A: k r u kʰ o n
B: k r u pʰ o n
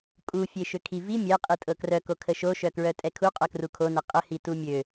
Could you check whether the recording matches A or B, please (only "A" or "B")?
A